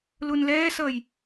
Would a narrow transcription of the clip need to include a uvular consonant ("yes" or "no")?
no